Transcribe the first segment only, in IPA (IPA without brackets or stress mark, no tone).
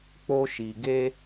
k͡p